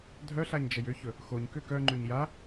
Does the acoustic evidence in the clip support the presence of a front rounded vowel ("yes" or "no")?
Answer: yes